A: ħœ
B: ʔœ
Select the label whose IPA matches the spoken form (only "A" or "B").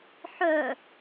A